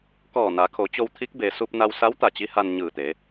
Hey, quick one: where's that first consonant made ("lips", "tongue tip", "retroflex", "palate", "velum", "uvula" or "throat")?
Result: velum